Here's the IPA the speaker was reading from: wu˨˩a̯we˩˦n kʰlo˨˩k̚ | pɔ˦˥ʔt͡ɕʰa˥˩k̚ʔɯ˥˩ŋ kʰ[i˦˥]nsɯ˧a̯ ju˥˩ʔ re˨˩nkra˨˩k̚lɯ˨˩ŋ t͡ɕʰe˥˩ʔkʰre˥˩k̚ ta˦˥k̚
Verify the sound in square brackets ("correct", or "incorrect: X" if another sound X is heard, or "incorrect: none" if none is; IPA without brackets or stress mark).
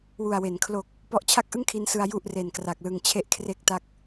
correct